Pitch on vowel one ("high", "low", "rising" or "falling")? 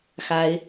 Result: rising